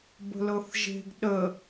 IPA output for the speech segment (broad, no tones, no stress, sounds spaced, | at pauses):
b ə̤ l ɤ θ ʒ e̤ ɡ ɗ ə